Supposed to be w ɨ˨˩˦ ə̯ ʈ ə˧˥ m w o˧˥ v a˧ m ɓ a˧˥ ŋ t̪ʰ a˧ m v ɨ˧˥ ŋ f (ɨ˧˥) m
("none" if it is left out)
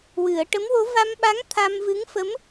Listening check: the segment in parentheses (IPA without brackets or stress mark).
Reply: ə˧˥